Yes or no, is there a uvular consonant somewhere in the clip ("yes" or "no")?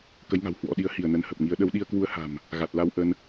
no